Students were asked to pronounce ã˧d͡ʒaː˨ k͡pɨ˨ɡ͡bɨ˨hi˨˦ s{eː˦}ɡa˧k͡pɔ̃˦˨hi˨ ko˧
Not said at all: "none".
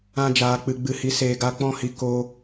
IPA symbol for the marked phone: eː˨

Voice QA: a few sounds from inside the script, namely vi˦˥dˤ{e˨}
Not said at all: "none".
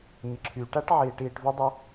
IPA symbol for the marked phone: e˦˥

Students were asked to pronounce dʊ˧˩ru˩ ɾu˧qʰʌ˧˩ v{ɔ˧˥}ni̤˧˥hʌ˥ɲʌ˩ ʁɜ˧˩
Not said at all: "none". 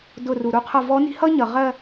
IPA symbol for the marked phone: ɔ˧˥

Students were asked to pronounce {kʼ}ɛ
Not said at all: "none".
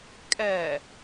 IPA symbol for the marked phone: kʼ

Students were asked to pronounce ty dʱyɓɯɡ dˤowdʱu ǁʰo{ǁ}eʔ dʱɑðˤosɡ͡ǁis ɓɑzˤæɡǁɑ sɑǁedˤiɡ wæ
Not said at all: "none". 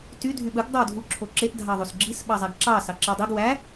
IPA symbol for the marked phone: ǁ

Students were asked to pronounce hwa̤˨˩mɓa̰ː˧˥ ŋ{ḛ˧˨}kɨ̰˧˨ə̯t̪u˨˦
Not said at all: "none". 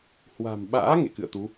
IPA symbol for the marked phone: ḛ˧˨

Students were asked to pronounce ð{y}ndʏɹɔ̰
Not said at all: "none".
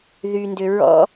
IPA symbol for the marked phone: y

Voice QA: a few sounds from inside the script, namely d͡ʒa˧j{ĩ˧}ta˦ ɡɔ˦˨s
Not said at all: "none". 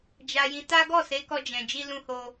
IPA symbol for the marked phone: ĩ˧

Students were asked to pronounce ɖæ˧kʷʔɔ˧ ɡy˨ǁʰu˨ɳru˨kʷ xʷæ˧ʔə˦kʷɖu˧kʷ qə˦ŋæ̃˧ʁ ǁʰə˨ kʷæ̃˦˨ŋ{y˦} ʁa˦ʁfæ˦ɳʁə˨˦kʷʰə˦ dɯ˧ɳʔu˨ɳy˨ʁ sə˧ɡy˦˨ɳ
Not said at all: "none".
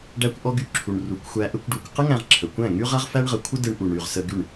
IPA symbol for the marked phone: y˦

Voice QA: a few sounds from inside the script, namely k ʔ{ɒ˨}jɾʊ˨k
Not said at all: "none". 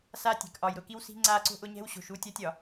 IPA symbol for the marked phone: ɒ˨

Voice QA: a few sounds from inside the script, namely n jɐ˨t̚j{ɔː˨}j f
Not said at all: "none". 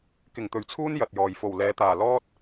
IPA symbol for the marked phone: ɔː˨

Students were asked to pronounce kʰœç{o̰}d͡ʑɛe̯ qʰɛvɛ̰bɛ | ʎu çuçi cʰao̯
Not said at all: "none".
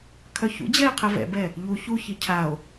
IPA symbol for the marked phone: ṵ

